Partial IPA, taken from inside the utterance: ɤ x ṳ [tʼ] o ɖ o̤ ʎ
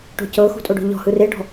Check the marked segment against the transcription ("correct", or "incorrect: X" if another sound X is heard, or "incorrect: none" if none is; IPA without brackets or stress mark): correct